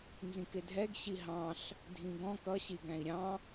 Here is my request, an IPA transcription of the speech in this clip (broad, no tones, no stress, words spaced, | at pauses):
nzĩkɪdʱɛɡ ɕiɦɑ̃ɬ | dʱĩɡɔ̃k ʌ ɕiɡæ̃i̯ɾʲɑ̃